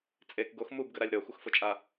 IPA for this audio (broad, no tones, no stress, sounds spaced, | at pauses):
t͡sʼ e k ɡ o x m u b ɡ ə ɾ a lʲ ɾ ɤ xʷ ə x f ʊ t͡ʃʼ a